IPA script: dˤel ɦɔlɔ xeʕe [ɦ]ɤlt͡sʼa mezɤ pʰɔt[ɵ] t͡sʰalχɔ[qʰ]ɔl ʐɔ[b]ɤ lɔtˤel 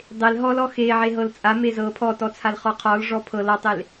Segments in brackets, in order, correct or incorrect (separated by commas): correct, incorrect, correct, incorrect